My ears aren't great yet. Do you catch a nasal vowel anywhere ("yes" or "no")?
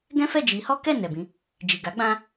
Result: yes